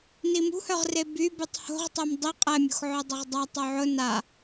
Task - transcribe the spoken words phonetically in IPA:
n i m ṳ h œ ʁ r e b y b y tˤ h o̤ ʁ tˤ o m dˤ i qʼ ɛ mʲ ṳ x ʕ ʊ dˤ ʊ ʁ dˤ a tˤ o ʕ ʊ n a

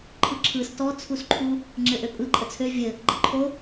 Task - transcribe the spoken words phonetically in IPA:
ǃʰ ɯ ǁʰ ɯ s t ɔ t͡sʰ u s ǃʰ u | ŋ͡ǁ ɘ ʔ ø pʼ ɯ ǃʼ ə t͡sʰ ø vʲ ɘ | ɡ͡ǃ ə ǃʰ o

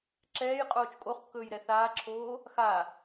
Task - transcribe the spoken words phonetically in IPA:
ǁ ɛː j qʼ oː t͡ʃ kʼ o χ kː ɵː j ɾ ɛ θ aː ǁʰ oː | x a

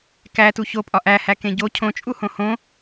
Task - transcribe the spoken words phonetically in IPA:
k æ t u ç o pʼ ɒ ʔ æ h æ k ẽ ɟ o cʰ õ t͡ʃʼ u h õ h õ

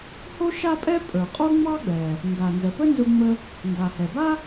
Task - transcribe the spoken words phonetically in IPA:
h o˥ ʃ a˥ pʼ ɛ˥ pʼ ə˞˩ qʼ o˥ ŋ͡m ɑ˥ ɡ͡b ɛ˩ | ŋ ɡ a˩ n z ə˩ p ə˥ n z ʊ˧ ŋ͡m ə˧ | ŋ ɡ a˩ h ɛ˩ b a˥

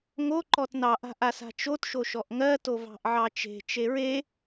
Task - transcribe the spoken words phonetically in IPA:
ŋ o ǃ ɔ t n ɑ ʔ a̤ ʔ a s a̤ t͡ʃ o t ʃ o ʃ ɔ ʔ ŋ ɜ t o v ɑ̤ ʔ ʕ ɑ t͡ʃ e̤ t͡ʃ e ɹ e

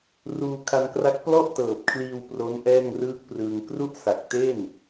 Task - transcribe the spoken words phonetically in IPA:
r uː˧ kʰ a˧ n k r a˦˥ k̚ p l ɔ˥˩ ʔ t ɤː˨˩ p̚ kʰ l iː˧ w p r o˦˥ n ʔ ɛː˥˩ ŋ r ɯː˥˩ k̚ p r ɯː˧ ŋ k r u˥˩ ʔ s a˨˩ k̚ t e˥˩ n

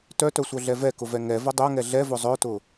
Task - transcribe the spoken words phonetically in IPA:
t œ t œ sʷ œ ɮ ɛ v ɛ k ʊ v ɛ ŋ ɛ v ə dˤ œ ŋ ɛ ɮ ɛ v ʊ zˤ œ t ʊ

